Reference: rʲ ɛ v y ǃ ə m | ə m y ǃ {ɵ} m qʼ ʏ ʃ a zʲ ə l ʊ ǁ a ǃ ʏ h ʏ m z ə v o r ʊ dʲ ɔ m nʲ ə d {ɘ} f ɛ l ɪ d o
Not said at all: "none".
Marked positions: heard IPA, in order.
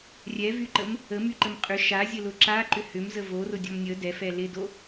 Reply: ə, ɛ

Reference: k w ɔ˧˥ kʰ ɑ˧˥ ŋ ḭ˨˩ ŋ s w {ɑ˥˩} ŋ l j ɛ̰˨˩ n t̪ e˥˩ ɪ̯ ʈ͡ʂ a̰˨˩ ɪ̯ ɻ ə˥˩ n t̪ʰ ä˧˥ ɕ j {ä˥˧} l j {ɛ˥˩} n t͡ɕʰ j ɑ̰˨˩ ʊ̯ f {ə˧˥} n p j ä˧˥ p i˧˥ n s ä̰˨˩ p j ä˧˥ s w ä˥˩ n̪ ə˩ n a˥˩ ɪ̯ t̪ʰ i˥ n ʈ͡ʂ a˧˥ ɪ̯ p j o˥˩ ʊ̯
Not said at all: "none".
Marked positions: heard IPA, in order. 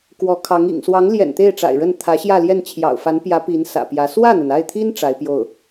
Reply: ɑ˧˥, ä˥˧, ɛ˥˩, a˧˥

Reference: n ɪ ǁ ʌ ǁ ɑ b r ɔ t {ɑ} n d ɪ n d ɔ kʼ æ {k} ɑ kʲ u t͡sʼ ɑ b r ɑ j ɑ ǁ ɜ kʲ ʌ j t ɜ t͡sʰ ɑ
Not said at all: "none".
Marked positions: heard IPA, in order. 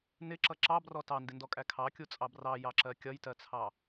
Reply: ɑ, kʰ

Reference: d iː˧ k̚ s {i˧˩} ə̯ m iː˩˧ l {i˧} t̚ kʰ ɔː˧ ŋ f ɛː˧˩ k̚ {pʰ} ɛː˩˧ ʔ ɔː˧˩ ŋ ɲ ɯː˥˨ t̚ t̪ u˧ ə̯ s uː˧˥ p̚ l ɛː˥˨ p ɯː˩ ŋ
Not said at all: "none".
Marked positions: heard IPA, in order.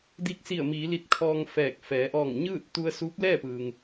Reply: i˧˩, i˧, f

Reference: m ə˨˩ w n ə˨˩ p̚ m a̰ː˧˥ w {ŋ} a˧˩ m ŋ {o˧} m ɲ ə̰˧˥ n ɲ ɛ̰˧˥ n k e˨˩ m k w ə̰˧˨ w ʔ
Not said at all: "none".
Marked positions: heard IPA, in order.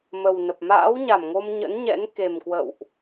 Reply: ɲ, o˧

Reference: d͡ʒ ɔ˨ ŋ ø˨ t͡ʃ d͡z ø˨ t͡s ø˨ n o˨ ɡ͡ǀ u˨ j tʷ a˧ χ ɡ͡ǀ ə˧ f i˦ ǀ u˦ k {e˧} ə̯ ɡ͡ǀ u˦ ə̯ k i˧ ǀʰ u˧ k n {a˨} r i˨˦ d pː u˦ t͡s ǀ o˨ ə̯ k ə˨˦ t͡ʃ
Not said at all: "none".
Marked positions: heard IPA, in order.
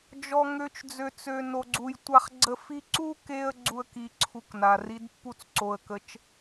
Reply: e˧, a˨

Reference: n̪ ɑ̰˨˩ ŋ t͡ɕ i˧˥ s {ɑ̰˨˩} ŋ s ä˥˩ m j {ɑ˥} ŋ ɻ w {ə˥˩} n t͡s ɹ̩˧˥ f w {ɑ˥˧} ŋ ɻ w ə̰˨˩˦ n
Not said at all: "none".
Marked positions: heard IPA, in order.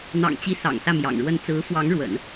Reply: ɑ̰˨˩, ɑ̰˨˩, ə˥˩, ɑ˧˥

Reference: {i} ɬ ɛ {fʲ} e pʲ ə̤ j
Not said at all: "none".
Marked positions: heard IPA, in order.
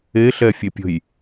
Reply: e, fʲ

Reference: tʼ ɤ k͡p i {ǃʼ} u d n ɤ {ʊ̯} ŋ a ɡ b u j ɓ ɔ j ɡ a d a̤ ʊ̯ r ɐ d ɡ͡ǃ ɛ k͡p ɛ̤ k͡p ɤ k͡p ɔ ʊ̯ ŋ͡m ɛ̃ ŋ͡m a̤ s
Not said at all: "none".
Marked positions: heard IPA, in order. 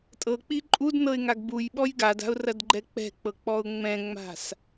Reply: ǃʼ, ɪ̯

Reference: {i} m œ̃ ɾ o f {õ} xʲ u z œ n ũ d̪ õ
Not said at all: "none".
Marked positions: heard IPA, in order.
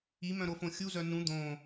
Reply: i, õ

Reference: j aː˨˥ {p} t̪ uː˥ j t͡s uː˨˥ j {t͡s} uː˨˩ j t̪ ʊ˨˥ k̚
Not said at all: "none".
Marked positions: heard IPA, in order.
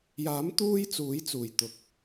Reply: m, t͡s

